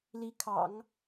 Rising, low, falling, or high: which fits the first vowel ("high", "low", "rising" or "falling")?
rising